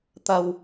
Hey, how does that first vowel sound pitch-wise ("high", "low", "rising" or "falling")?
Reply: low